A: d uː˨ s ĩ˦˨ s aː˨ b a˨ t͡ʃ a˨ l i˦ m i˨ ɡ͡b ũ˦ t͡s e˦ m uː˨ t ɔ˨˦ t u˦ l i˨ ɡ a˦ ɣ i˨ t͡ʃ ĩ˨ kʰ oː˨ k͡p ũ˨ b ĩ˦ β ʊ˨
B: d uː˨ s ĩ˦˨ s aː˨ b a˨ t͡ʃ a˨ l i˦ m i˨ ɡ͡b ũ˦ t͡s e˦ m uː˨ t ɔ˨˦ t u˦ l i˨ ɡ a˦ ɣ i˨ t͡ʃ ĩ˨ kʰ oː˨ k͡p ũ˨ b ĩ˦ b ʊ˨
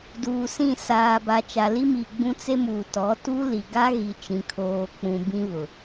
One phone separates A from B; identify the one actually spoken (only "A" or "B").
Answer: A